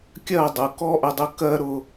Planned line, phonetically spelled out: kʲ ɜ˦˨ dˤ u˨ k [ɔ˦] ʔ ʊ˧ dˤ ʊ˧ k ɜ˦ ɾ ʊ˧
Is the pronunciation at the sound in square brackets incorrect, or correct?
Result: correct